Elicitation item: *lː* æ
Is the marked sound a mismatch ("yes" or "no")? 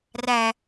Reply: yes